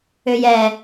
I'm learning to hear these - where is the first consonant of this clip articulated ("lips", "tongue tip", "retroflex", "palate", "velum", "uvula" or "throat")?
palate